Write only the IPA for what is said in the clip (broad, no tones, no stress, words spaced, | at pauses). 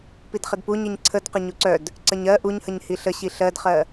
pidχədpuɲiɲ ǀʰədqə ɲuǀœd | ǀəɲɜ ʔuɲhəɲhi ɬəɕi ɬɜdχɜ